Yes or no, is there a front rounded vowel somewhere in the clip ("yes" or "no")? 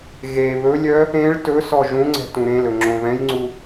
yes